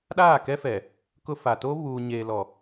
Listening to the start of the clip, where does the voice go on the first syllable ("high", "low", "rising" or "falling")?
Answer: falling